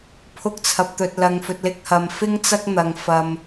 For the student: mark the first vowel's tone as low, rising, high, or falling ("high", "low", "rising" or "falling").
high